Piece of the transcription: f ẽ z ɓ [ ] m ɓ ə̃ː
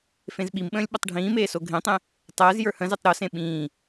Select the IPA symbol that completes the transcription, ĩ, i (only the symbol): i